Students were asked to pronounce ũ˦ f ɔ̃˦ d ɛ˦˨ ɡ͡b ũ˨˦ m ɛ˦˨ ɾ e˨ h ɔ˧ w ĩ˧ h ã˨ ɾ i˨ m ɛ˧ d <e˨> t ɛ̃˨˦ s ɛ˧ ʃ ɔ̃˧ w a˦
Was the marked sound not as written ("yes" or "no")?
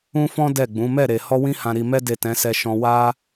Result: no